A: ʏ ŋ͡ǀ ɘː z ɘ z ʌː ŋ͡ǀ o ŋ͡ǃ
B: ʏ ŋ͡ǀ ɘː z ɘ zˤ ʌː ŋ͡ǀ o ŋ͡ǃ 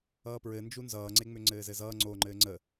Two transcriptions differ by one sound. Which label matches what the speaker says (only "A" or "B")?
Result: A